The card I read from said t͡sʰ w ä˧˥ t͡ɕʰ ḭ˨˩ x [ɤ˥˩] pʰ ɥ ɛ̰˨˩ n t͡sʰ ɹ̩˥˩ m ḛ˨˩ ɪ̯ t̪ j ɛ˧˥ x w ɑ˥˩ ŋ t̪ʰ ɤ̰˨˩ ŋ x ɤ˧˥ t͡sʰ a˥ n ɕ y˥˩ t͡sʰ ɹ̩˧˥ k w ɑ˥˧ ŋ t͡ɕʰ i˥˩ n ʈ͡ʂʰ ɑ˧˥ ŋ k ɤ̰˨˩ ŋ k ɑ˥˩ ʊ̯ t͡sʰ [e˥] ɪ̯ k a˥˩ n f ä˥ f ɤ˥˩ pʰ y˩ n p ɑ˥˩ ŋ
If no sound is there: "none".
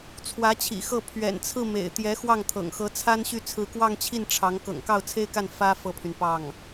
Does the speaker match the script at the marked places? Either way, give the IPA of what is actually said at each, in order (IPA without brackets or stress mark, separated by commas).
ɤ˥˩, e˥